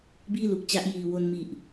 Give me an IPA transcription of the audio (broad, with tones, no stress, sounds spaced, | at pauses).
b iː˥˩ l u˨˩ k̚ t͡ɕ a˦˥ ʔ j iː˨˩ w o˧ n m i˨˩ ʔ